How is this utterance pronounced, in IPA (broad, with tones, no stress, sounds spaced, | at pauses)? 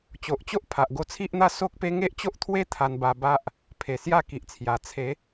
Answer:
t͡ɕ o˨ ʔ t͡ɕ o˦ ʔ pʰ a˨ ʔ ɡ o˧ t͡sʰ i˦ ʔ n̪ a˥˧ s o˦ k̚ p e˦ ŋ e˦ ʔ t͡ɕ o˦ ʔ t̪ʰ w e˦ t̪ʰ a˧ n b a˧ b a˦ ʔ | pʰ e˨˩ s j a˥˧ k i˨ ʔ t͡sʰ j a˨˩ t͡sʰ e˨˦